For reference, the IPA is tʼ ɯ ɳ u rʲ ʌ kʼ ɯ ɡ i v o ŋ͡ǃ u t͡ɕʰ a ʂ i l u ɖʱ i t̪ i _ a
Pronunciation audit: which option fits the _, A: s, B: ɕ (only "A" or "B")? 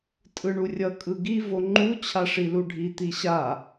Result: B